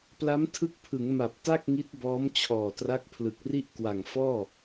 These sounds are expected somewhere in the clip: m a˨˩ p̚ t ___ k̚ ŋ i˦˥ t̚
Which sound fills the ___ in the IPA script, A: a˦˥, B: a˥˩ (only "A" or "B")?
B